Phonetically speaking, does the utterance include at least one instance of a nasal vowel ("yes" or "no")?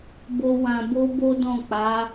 yes